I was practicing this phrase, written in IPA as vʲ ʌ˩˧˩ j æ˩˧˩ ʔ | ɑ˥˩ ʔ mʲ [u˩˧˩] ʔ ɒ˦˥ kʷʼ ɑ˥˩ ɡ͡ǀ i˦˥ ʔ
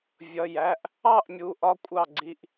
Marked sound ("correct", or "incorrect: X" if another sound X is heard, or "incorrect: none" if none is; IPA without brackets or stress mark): correct